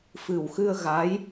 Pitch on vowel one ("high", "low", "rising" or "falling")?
low